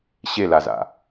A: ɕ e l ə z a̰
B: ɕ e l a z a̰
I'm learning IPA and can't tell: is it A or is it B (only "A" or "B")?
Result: B